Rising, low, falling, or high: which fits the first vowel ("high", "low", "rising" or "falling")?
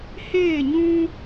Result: falling